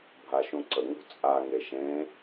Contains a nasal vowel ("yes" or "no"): yes